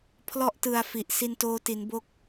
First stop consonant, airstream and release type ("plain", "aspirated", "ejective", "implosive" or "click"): aspirated